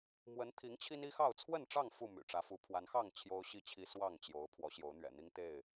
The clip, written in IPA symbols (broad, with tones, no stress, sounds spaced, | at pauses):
m w ə˨˦ n t̪ʰ i˨˦ ŋ t͡ɕʰ i˦ n i˦ x ɑ˥˨ ʊ̯ t͡sʰ w ə˥˨ n ʈ͡ʂ ɑ˥˨ ŋ f u˥˨ m y̰˨˩ ʈ͡ʂ ä˨˦ f u˨˦ pʰ w a˨˦ n x ɑ˥˨ ŋ t͡ɕʰ j o˦ ʊ̯ ɕ i˥˨ t͡ɕʰ i˦ s w ɑ˥˨ ŋ t͡ɕ j o˨˦ ʊ̯ pʰ w ɔ˨˦ ɕ j o˨˦ ʊ̯ n̪ ɥ ɛ̰˨˩ n̪ i˦ ŋ t̪ e˥˨ ɪ̯